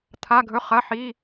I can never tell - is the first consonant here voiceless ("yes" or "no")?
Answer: yes